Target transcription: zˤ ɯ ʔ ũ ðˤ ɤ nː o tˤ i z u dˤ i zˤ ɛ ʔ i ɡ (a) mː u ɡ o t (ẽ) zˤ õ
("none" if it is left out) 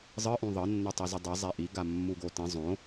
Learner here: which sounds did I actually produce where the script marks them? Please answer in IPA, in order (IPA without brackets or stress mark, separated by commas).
a, ĩ